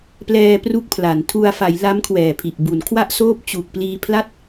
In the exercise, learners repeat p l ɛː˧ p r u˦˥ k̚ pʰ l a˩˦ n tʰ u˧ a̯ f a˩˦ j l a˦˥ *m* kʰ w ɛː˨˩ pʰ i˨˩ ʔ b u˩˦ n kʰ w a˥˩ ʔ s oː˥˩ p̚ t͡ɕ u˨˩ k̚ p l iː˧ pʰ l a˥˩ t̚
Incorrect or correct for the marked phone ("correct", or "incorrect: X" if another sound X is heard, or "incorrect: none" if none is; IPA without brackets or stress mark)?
correct